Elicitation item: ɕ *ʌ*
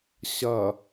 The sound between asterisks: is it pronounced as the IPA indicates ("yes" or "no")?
yes